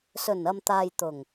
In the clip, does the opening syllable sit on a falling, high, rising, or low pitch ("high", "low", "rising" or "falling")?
low